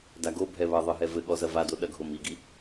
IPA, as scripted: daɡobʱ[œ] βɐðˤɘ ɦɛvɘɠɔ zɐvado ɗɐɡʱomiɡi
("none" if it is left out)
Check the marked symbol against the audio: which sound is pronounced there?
ɛ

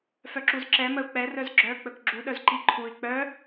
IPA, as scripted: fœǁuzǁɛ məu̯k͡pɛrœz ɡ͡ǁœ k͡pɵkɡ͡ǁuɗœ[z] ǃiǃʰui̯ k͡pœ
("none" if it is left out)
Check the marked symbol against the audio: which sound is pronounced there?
z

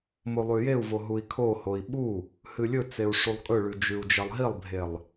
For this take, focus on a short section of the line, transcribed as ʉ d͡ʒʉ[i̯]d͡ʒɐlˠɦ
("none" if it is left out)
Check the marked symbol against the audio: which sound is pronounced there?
u̯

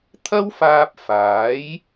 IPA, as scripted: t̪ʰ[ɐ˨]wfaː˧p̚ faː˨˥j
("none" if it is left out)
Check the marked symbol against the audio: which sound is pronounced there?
ɐ˥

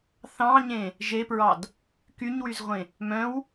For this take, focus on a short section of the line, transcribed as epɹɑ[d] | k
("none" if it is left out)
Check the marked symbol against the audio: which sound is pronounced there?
d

